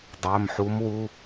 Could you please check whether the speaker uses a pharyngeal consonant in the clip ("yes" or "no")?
yes